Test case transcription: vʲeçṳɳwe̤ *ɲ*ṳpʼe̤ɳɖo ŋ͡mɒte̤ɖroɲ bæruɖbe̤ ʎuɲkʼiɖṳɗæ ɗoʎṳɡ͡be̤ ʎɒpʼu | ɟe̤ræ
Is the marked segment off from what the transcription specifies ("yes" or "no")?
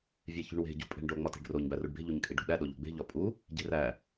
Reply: yes